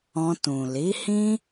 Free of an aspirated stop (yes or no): yes